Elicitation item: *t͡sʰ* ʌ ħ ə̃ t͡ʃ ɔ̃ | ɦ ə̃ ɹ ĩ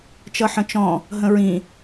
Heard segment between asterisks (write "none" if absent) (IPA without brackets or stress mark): t͡ʃ